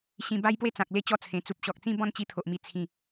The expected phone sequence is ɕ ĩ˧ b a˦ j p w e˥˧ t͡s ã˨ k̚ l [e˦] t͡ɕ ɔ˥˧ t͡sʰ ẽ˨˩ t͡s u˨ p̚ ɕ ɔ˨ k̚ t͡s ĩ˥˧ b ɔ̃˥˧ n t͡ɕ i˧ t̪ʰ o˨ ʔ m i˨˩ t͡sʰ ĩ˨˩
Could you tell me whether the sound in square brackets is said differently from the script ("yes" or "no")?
yes